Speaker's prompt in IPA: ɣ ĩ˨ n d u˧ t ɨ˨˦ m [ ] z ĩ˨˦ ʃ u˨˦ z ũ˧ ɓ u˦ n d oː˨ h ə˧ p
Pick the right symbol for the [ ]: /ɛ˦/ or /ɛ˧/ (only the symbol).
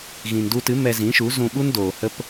ɛ˧